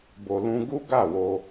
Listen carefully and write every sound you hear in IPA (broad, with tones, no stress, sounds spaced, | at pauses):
b o˨ l ũ˧ ɡ u˦ ɡ a˦˨ w o˧